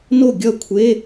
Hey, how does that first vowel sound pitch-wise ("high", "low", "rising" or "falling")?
falling